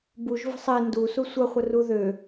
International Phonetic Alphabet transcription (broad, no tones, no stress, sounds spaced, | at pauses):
b u ʒ v ə̤ sˤ e n d u s u sʷ ʌ χʷ ə r u ð ø